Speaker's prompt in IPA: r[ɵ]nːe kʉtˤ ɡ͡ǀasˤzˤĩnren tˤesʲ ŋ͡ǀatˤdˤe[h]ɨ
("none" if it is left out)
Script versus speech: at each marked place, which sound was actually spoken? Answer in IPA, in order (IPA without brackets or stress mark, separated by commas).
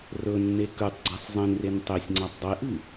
ɵ, ʔ